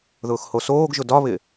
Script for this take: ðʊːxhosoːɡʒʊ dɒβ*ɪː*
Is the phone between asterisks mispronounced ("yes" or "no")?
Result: yes